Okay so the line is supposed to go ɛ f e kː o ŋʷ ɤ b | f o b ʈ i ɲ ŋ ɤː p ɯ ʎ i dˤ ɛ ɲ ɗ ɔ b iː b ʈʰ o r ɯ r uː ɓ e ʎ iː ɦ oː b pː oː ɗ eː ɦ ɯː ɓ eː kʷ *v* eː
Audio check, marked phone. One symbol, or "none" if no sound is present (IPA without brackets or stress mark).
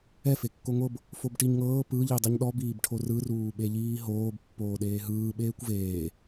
v